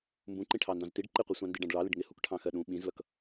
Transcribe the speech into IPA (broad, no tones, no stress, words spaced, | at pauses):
mbũǃĩ ʈʰɑndɑ̃ztiɖ ǃɪqʷi sʷɑ̃ndiɖɑ̃ɖɭɑ lɪɖŋɪ hukʈʰɑ̃xɜɗũ ɓĩzlʌk